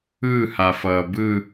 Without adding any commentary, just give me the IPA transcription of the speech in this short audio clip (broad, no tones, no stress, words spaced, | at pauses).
ɯhafʌː bɯ